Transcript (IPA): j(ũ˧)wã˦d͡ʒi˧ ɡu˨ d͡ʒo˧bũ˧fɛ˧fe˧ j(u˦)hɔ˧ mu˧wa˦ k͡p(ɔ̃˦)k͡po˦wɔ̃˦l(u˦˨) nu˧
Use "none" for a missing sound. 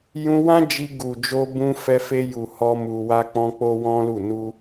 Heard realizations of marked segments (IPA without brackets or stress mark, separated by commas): ũ˧, u˨, ɔ̃˦, u˦˨